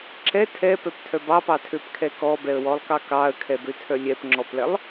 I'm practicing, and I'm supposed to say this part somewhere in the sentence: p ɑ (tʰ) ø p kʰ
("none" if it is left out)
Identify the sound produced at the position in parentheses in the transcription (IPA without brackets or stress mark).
tʰ